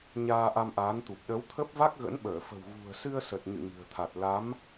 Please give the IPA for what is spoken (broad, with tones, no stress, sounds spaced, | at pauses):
ɲ aː˧ ʔ a˧ m ʔ aː˨˦ n t̪ u˨˩ p̚ ɗ ə˨˦ w t̪ʰ ə˦˥ p̚ v a˦˥ k̚ ɣ ə̰˧˥ n ɓ əː˧˩ f ə̤˨˩ w ɣ ṳ˨˩ ə̯ s ɨ˧ ə̯ s ə˨˩ t̚ ɲ ɨ̰˧˨ ŋ ɨ̤˨˩ ə̯ t̪ʰ a˨˩ t̚ l a˨˦ m